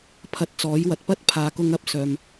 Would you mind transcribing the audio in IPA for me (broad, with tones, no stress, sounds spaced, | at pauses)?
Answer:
pʰ ɐ˧ t̚ t͡s ɔː˨˥ j w ɐ˨ t̚ p ɐ˥ t̚ pʰ aː˨ k ʊ˧ ŋ ɐ˥ p̚ s œː˨ m